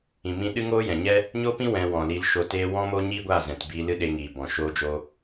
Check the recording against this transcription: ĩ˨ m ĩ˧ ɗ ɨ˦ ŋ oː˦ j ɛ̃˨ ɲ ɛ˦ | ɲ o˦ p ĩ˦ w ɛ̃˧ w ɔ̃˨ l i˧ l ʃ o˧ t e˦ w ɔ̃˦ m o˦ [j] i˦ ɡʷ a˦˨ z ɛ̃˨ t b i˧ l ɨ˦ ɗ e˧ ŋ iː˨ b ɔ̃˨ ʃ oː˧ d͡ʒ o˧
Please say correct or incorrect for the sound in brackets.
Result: incorrect